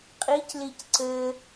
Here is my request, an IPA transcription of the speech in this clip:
qʼ i c l i c ǀ ɘ

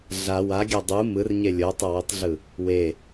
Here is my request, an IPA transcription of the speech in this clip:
ɮ a w a ɡʲ a dˤ u m ɯ r ɲ e lʲ o tˤ ʌ w i tˤ ɮ ɯ | w e

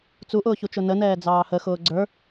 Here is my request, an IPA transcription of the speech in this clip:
t͡s u ʔ ʊː ç u t͡ʃ ʊ n ə n ɛː d͡z ɑː h ə x ʊː ɡ͡ǀ ə˞

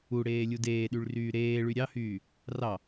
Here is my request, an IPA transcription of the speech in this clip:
u ɽ eː lʲ u d eː ɗ y ɭ r yː ɾ eː ɭ y ɾʲ ɑ h yː | r ɑ

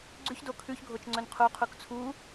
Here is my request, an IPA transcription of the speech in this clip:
ɡ͡ǀ ʉ ç d o kʰ ʉ ç ɡʱ o t͡ʃ ŋ͡ǀ ɵ n qʰ u qʰ u k t͡sʰ u

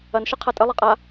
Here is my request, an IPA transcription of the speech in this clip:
ɐ n ʃ ɘ qʰ a tʼ ɘ lˠ ɛ qʼ a

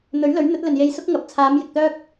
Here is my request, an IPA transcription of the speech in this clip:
n̪ ɵ˨˥ ɥ l ɵ˨˥ ɥ n̪ ɵ˨˥ t̚ l ɵ˨ n j e˧ j s ʊ˥ k̚ ŋ ɐ˨ p̚ t͡sʰ aː˨˧ m j ɪ˨ k̚ t̪ œː˥ k̚

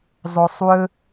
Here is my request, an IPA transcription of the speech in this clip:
zˤ o sˤ w ɵ

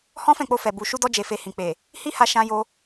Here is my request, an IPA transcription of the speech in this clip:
h ɔ̃˦ f ɛ̃˦˨ k͡p o˧ f ɛ˨ b u˨ ʃ u˧ d ɔ˧ d͡ʒ e˨ f e˨ h ĩ˨ k͡p e˨ | h i˦ h a˧ ʃ ã˧ j o˧

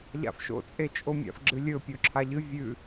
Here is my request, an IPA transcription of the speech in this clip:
ʎ a̰ f ʃ o̰ t͡sʼ e t͡ʃʼ o mʲ a̰ f ɡ͡ǁ ɨ lʲ ɵ pʲ o ǁʰ a ʎ ɨ vʲ ʉ

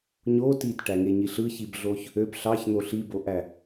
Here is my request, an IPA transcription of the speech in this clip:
ɲ o t i t ʈ æ ŋ e ɲ i ɬ ɯ ç i b ɮ o ç | ø b ɬ ɑ ç n̪ o ɬ i b o ʔ æ

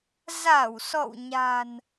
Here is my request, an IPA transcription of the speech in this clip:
z a˧˩ w s ɔ̰˧˨ w ɲ a̤˨˩ n

